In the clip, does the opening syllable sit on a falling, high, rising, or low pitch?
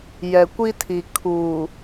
low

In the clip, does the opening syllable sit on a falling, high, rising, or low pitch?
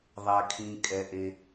low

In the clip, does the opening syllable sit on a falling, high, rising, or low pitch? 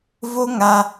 high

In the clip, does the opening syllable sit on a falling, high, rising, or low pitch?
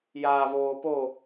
low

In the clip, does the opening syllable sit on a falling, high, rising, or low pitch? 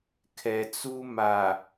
low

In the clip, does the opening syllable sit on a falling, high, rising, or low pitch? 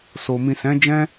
low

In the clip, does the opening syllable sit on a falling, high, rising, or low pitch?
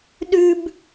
high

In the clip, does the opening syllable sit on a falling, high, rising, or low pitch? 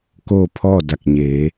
falling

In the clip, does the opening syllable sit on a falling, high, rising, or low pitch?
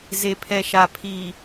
low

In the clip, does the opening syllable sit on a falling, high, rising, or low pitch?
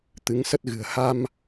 rising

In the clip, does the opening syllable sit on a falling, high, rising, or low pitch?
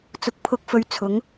rising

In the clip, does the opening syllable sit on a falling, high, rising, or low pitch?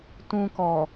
high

